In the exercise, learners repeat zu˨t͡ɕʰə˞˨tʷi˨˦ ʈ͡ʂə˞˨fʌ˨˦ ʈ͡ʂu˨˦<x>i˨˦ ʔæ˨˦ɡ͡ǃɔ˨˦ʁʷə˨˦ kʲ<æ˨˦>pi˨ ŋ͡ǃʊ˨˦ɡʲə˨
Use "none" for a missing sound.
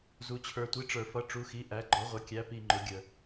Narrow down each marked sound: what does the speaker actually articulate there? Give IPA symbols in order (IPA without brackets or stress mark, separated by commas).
x, æ˨˦